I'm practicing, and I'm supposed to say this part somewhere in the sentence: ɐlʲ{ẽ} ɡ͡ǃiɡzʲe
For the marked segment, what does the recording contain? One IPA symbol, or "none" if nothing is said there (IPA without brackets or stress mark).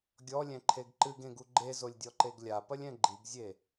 ɛ̃